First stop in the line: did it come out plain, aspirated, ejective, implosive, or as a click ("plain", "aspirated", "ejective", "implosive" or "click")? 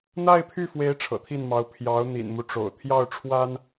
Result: aspirated